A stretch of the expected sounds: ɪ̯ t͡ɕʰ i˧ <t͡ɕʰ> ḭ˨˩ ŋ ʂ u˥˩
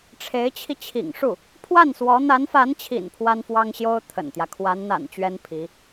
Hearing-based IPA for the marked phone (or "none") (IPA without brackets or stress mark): t͡ɕʰ